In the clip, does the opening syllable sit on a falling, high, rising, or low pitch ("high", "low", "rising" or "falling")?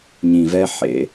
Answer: low